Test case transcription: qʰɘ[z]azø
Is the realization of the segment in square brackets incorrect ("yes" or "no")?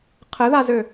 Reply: yes